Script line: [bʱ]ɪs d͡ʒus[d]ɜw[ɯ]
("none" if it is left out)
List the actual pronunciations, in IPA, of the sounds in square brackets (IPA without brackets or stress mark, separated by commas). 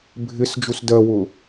bʱ, d, ʊ